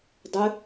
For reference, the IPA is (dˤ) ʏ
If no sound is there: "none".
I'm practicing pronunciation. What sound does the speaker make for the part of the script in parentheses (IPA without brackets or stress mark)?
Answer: dˤ